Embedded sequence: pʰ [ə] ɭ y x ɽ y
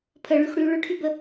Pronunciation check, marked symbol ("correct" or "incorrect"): correct